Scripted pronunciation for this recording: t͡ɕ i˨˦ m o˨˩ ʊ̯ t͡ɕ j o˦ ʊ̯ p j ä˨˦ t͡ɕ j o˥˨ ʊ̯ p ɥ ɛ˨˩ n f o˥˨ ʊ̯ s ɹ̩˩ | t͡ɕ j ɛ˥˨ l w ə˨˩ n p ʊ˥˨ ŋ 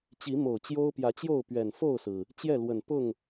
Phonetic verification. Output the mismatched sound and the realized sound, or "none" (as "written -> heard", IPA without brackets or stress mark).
none